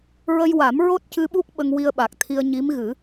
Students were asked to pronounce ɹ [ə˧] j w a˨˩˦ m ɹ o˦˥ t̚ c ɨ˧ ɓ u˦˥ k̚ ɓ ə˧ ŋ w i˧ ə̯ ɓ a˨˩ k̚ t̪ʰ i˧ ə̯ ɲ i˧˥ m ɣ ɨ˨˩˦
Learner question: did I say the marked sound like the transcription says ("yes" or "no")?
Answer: yes